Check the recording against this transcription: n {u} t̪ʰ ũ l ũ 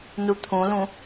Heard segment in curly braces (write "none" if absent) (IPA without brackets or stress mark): u